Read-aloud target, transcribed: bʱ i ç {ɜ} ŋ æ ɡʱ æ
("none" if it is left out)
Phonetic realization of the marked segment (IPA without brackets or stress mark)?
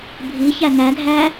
æ